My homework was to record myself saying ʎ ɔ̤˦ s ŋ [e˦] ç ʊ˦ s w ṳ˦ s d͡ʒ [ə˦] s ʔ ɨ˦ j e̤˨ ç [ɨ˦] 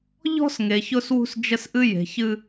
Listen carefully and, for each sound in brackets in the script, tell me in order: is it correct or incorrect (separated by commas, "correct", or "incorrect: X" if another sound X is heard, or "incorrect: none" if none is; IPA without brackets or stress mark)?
incorrect: e˨, correct, correct